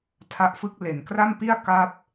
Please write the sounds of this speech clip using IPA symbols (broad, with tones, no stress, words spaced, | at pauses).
tʰa˦˥ʔfɯ˥˩k̚ le˨˩nkra˥˩mpi˥˩a̯ ka˥˩p̚